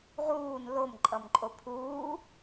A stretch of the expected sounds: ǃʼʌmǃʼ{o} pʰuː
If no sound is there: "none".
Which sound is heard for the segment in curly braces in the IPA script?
o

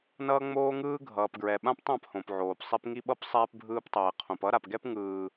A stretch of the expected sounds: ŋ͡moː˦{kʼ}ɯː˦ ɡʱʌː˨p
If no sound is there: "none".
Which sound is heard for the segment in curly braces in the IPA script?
ŋ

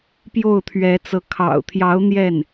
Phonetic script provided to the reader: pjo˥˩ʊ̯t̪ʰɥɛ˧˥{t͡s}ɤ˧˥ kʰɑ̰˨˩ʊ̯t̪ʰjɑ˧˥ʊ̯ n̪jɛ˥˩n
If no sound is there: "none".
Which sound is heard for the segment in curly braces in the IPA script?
t͡s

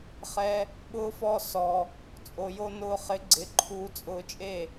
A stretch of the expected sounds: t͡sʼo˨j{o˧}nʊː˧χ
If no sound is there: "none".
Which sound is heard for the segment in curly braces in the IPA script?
o˧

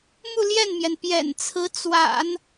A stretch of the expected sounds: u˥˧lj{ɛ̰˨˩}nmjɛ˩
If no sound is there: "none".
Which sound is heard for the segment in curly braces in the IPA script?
ɛ˥˩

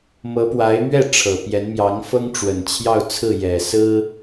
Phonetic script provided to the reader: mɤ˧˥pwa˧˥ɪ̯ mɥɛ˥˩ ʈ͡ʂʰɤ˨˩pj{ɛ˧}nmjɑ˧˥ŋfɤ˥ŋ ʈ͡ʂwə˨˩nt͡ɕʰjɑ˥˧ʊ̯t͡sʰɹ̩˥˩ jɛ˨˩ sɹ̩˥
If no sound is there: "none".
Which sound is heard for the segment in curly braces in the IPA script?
ɛ˧˥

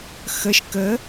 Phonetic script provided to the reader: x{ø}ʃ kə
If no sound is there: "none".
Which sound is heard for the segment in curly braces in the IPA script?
ə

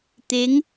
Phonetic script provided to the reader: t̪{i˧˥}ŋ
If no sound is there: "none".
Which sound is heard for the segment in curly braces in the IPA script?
e˧˥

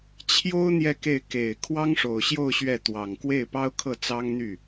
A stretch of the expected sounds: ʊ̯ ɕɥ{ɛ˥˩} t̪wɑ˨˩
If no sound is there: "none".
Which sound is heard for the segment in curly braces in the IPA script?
ɛ˥˩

